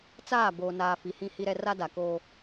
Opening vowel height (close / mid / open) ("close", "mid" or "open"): open